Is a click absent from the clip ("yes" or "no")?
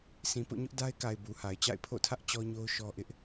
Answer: yes